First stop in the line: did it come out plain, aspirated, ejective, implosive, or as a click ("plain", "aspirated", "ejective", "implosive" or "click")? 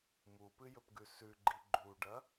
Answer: plain